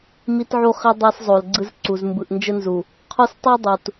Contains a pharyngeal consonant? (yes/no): yes